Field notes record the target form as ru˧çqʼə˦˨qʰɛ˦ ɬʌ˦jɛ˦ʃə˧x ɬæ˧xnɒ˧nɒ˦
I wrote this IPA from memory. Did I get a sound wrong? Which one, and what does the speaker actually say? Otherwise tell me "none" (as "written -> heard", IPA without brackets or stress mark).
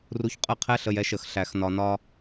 ʌ˦ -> ə˦